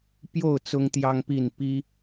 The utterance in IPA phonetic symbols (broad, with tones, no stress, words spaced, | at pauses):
pjo˥˨ʊ̯ t͡sʊ˦ŋt̪jɑ˦ŋpi˥˨n pi˦